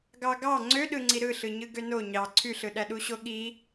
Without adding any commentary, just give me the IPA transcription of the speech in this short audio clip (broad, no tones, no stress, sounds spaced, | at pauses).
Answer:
ɡ ɑ ɡ ɑ ŋ͡ǀ ø ɗ ɯ ŋ͡ǀ i ɾ ɯ ɬ ɯ ɲ ɯ ɡ ø n o ɲ ɑ ǀʰ y ɬ ɯ ɗ æ ɗ u ɕ o ɠ i